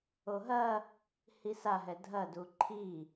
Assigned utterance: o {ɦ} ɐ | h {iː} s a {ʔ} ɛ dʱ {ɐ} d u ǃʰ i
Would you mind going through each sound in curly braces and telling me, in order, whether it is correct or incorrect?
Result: correct, incorrect, incorrect, correct

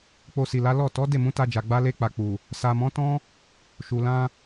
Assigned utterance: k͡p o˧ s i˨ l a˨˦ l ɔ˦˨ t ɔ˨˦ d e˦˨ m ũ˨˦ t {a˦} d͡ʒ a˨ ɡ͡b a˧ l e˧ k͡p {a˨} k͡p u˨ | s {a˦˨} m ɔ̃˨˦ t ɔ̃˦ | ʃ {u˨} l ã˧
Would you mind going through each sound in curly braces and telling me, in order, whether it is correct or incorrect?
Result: incorrect, correct, incorrect, correct

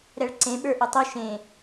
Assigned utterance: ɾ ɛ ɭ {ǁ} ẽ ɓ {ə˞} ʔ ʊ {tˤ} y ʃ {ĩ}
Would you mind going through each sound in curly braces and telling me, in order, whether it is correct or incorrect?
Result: incorrect, correct, correct, incorrect

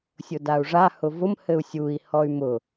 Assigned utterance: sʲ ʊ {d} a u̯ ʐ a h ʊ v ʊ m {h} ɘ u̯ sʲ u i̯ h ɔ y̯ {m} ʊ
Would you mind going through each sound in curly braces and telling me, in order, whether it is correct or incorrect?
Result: correct, correct, correct

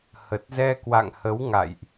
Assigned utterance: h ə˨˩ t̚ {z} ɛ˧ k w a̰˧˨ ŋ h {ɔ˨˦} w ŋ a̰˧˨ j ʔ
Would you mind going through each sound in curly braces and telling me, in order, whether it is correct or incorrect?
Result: correct, incorrect

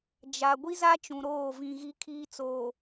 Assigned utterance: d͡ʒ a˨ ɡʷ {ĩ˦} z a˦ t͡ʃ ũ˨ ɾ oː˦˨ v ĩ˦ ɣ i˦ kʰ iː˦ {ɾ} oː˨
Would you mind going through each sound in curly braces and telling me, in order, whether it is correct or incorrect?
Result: incorrect, incorrect

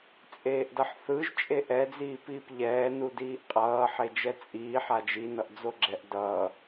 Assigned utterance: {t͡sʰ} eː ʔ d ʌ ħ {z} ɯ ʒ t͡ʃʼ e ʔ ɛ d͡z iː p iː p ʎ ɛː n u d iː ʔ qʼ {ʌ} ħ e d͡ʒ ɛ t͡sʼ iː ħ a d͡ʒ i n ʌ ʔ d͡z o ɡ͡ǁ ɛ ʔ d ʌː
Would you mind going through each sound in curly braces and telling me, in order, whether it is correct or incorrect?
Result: incorrect, incorrect, incorrect

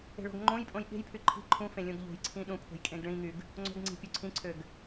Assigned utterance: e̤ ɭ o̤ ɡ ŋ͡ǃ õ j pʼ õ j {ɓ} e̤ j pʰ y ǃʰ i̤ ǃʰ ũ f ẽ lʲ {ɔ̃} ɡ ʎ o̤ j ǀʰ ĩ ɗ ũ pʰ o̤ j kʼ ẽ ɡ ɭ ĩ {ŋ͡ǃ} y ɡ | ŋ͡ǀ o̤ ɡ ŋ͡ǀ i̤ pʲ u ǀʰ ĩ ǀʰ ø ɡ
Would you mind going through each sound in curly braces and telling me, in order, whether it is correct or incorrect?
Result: correct, incorrect, incorrect

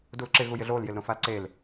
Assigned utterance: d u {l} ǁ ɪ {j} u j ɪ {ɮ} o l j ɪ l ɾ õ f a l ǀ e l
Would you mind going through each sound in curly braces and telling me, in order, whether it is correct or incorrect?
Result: correct, incorrect, correct

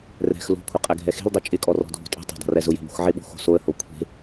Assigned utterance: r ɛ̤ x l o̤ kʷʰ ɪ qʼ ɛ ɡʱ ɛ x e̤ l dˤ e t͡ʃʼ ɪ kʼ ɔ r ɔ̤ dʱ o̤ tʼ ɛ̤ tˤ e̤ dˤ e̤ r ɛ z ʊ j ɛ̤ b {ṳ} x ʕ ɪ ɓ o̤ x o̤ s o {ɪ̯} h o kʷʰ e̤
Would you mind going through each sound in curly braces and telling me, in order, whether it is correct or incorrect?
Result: incorrect, incorrect

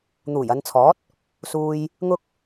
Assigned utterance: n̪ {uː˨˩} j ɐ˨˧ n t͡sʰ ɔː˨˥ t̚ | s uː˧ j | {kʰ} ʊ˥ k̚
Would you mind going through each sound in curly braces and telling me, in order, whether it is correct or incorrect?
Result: correct, incorrect

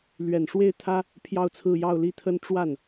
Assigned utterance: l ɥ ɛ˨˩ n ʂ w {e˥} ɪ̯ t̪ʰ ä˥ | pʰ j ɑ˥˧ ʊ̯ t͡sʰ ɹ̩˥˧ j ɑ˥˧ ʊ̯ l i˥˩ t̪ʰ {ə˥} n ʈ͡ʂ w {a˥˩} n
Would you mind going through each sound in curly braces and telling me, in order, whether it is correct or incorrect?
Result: incorrect, correct, correct

